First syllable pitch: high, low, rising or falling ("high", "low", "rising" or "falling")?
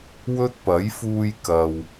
high